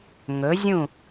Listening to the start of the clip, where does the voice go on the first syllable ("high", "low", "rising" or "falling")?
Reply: rising